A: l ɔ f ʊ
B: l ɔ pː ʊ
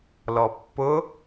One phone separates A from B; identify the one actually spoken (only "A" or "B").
B